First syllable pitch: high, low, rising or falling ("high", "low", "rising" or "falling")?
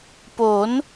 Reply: rising